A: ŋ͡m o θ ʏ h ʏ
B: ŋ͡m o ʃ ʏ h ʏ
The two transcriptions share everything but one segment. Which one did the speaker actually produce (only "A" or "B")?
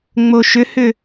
B